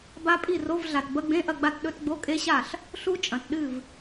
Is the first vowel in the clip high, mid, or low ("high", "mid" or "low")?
low